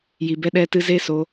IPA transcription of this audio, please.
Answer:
j i˨ b ɛ˧ ɗ ɛ˧ t ɨ˧ z e˧ s o˧

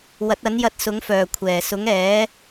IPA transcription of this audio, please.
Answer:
w ɐ˨˥ t̚ ɐ˨˥ n j ɐ˧ t̚ s ʊ˨˥ ŋ f œː˨˩ kʷʰ ɛː˨˩ s ʊ˨˥ ŋ ɛː˨˥

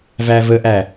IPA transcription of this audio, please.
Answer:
v æ v ə ʔ æ

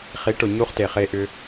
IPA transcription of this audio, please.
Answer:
χ i˩˥ ʈ ʊ˩ ɲ u˧ χ t e˩ χ e˩ ʔ ʏ˩

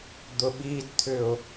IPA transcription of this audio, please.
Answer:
d̪ ʊ ɓ i d t̪ʰ ʏ ʊ̯

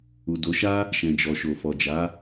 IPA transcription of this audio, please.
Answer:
u˨ d o˨˦ ʃ a˦ | ʃ ɛ̃˨ d͡ʒ ɔ˨ ʃ o˨ f ɔ˨ d͡ʒ a˨˦

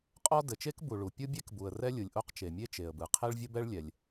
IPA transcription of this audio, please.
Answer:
qʼ ɔ˥ d ɘ˩ t͡ʃ e˥ k b u˩ ɭ u˩ pʲ ɯ˥ bʲ e˥ k b u˩ ə̯ r ɛ˥ lʲ ɯ˩ lʲ ʔ o˥ q t͡ʃ e˩ mʲ e˥ t͡ʃ e˩ ə̯ b ɯ˩ qʰ e˥ ɭ vʲ ɘ˥ b ɛ˥ ɭ lʲ ɛ˩ lʲ

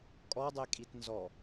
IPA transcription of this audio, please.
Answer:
kʼ ɔ dˤ e kʼ i t n z ɔ

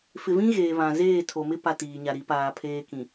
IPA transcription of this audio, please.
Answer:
f ɪ˨ v ĩ˦ ɣ eː˨ β ã˨ z eː˦˨ tʰ o˨ m ɪ˦ p a˨ t iː˨ ɲ a˨ ɾ i˨˦ p aː˨ pʰ eː˦ k ĩ˨

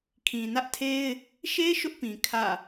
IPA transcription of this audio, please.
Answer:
kʰ ĩ˨ n ä˦ ʔ tʰ e˦ ɪ̯ | ʃ e˦ ʃ ʊ˦ ʔ p ĩ˨ kʰ ä̰˦˨

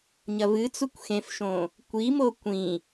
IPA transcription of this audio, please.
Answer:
ɲ ɐ v ɨ t͡s u kʷ x ẽ f ʃ õ | kʷ i m o kʷ ĩ

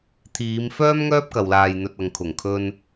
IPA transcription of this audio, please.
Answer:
t̪ʰ iː˨˧ m f œː˥ m ŋ œː˥ p̚ k ɐ˨ w l aː˨ j n̪ ɵ˨ t̚ ɐ˨ ŋ kʰ ʊ˨˩ ŋ kʰ ɵ˧ n

